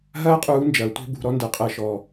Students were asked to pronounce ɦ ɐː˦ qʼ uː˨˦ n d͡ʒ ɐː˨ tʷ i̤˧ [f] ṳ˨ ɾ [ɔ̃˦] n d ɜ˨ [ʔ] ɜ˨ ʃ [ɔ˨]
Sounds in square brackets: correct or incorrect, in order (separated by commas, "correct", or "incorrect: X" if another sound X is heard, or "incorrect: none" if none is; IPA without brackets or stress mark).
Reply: incorrect: b, incorrect: ɔ˦, incorrect: qʼ, correct